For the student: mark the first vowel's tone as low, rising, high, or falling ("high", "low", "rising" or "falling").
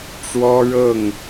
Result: high